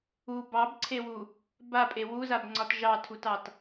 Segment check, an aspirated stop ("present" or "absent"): present